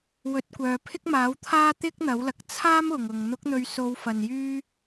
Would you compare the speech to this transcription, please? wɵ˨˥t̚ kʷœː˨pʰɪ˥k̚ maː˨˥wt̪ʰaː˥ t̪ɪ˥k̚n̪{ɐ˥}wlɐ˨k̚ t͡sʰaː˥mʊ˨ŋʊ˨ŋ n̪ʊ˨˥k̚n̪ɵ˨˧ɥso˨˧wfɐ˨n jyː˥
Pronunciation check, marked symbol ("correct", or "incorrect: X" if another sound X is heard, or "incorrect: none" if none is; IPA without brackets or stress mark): incorrect: ɐ˨˥